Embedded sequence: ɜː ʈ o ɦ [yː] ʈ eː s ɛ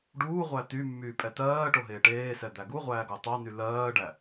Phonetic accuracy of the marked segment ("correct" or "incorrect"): incorrect